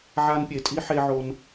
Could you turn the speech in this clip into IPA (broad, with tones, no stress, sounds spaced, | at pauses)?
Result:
ʕ a˦ n pʲ e˧ tʼ i˦ ħ e˧ ʕ o˧ n